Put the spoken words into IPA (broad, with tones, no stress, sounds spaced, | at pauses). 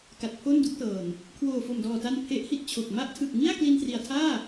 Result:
k a˨˩ t̚ pʰ o˥˩ n d u˥˩ k̚ t ɤː˨˩ n | kʰ w oː˨˩ f o˨˩ m d ɔː˨˩ t a˧ n pʰ e˦˥ ʔ h i˥˩ t̚ t͡ɕʰ o˨˩ k̚ m a˦˥ ʔ tʰ ɯ˨˩ k̚ ŋ i˥˩ a̯ k l i˧ n t r i˨˩ a̯ tʰ aː˥˩